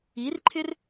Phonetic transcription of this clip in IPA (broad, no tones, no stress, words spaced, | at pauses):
irǃʰɪr